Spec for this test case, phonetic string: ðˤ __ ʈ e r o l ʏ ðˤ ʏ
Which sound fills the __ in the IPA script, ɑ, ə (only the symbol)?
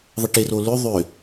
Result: ə